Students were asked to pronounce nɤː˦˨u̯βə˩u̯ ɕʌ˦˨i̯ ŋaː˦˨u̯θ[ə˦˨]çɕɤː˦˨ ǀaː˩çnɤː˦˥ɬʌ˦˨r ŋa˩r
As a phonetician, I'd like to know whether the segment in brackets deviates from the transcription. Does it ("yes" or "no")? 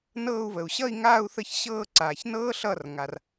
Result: no